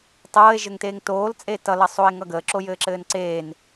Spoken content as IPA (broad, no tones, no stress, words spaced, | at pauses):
tˤɤːe̯ʒɘŋteːŋ toːlt͡sʼe tʌ lʌsˤoe̯ŋʌɡəː ǁojɘːǁɘːnǀeːn